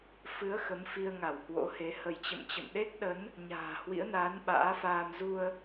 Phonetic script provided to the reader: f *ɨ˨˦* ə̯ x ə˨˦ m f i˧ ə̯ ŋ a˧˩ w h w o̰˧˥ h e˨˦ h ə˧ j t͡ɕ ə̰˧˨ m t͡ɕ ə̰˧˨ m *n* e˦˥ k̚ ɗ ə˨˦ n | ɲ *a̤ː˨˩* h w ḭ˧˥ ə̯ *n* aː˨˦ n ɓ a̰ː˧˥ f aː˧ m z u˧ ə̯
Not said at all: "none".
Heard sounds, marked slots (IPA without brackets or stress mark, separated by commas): ɨ˨˦, ɗ, a̤ː˨˩, n